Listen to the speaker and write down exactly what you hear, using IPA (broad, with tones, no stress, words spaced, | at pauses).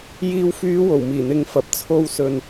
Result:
jiː˨wfyː˨˧ wo˨˩wmiː˨˩ n̪ɪ˨ŋ fɐ˨˥p̚t͡sʰo˧w sɵ˨n